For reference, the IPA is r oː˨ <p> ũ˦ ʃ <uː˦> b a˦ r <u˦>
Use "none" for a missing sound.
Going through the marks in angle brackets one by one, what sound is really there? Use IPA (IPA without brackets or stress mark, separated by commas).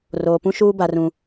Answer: p, uː˦, ũ˦